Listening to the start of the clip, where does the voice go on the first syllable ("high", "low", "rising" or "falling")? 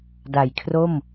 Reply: low